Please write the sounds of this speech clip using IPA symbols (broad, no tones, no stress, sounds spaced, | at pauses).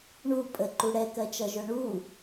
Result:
ɳ u pʼ ə ǃ u ɽ ɛ k ɜ t͡ʃ ʌ ʒ ʊ ɳ u